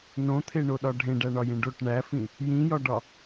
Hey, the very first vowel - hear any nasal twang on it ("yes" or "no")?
yes